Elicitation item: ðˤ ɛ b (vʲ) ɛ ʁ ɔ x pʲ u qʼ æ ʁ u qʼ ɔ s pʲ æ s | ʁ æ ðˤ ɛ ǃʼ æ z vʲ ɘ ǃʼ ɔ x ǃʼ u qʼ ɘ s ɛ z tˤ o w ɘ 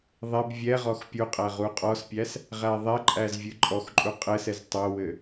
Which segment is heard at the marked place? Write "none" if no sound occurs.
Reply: vʲ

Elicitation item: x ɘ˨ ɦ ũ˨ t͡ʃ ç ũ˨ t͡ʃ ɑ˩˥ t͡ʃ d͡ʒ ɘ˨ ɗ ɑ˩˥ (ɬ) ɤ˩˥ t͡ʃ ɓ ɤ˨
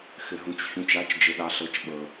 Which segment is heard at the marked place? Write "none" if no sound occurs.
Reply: ɬ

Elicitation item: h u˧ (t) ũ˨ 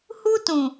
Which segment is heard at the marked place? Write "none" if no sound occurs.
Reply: t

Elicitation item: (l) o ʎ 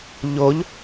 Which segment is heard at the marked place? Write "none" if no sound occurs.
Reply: ʎ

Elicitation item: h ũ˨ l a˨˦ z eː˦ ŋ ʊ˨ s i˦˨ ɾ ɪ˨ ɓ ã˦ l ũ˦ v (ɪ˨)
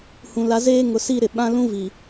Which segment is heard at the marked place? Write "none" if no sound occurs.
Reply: i˨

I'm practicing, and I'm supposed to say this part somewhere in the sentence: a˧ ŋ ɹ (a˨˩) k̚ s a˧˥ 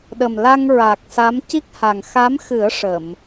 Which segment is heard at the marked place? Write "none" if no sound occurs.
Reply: a˨˩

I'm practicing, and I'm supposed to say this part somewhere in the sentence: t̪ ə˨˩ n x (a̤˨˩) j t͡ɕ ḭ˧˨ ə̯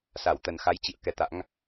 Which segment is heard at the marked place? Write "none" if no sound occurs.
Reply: a˨˦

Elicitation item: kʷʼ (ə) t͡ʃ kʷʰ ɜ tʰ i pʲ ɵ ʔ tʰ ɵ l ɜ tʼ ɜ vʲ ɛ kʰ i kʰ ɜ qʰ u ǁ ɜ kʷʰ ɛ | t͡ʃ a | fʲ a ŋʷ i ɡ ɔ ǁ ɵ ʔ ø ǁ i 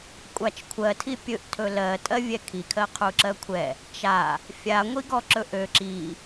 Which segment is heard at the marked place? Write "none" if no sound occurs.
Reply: a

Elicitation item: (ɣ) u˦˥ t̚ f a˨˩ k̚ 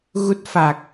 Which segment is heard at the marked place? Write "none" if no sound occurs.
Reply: ɣ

